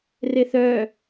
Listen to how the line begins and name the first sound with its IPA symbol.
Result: r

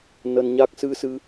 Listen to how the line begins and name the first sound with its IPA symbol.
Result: n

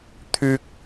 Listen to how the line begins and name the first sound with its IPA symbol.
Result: t̪ʰ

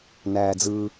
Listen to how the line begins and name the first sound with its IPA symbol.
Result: n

